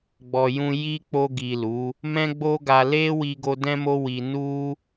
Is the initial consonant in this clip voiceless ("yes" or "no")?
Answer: no